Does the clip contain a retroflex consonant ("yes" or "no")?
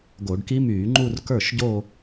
yes